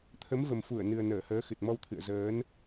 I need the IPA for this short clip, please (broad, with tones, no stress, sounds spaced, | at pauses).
t̪ʰ ə˨˦ m v ə˨˩ m f u˧˩ ə̯ n ɨ˨˩ ə̯ n əː˧˩ h əː˨˦ x ɨ˨˩ t̚ m ɔ˧ w t̪ʰ ɨ̰˧˨ ə̯ z əː˨˦ n